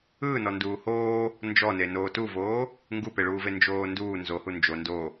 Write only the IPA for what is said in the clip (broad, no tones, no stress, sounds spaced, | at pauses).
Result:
ɯː n ɔ n d uː h oː | n d͡ʒ ɔ n e n oː t u v oː | ŋ ɡ u p e ɭ uː v e n d͡ʒ oː n d uː n z o h u n d͡ʒ o n d o